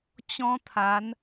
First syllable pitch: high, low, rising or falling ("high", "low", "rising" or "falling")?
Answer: high